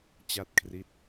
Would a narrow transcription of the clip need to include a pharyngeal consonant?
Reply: no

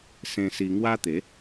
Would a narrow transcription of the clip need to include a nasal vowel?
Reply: yes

